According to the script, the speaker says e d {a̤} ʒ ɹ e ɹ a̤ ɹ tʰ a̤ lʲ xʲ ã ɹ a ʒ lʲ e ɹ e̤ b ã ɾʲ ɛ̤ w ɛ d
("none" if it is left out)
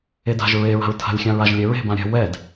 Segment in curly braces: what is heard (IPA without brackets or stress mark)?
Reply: a̤